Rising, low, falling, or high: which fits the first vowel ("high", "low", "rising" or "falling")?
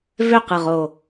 falling